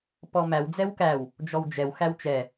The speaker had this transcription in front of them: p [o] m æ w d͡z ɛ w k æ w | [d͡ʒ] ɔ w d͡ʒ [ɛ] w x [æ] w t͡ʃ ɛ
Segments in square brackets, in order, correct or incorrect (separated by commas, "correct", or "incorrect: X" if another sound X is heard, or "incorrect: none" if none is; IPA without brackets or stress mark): incorrect: ɔ, correct, correct, correct